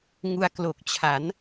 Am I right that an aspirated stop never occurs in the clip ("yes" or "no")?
no